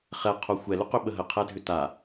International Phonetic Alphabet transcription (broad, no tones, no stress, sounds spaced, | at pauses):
χ ɛ qʰ o xʷ ɛ l ʏ q ʏ ɓ ə ɦ ə qʰ ɛ dʱ ʏ t a